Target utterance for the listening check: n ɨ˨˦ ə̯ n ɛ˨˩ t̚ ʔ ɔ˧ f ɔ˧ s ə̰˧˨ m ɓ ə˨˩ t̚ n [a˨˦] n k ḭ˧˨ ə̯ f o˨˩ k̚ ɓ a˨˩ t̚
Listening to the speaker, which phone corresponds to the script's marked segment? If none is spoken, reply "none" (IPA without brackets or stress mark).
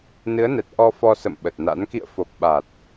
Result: a̰˧˥